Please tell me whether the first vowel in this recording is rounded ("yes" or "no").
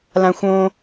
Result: no